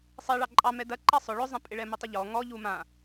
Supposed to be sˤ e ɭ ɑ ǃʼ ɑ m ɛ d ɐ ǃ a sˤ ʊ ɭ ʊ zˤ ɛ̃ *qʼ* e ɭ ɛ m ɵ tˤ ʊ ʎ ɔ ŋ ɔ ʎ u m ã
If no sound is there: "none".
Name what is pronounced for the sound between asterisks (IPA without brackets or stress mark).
pʼ